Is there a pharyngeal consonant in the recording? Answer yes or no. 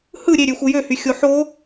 yes